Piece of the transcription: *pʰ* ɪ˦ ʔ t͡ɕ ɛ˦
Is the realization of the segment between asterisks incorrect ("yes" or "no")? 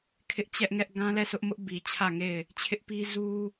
yes